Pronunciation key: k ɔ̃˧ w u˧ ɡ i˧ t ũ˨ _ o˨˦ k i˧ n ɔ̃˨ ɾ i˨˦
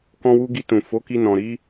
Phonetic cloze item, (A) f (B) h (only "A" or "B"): A